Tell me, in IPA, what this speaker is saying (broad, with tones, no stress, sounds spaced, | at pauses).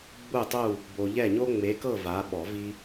ɡ͡b u˦˨ tˤ u˦˨ | b o˨ ʎ ɛ˦˨ ɲ o˦ ŋ͡m e˨˦ k ɤ˦˨ v a˨˦ ɓ ɔ˨˩˦ v i˦